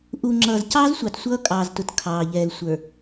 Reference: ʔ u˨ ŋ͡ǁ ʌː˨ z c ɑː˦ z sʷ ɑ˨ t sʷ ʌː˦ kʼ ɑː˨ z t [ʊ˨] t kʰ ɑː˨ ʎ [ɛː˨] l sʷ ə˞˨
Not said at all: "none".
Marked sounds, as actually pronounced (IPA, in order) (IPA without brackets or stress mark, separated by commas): ʊ˨, ɛː˨